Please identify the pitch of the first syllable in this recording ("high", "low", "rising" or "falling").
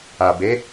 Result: low